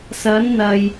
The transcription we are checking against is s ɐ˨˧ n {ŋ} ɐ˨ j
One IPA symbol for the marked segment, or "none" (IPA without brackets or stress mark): n̪